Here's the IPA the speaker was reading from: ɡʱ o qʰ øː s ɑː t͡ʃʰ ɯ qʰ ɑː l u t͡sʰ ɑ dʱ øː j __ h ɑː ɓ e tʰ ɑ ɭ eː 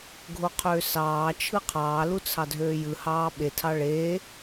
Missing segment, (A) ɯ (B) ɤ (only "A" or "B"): A